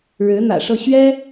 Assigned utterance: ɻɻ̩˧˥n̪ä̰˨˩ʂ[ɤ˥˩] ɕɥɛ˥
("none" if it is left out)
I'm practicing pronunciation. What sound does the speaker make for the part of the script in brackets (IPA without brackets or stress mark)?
ɤ˥˩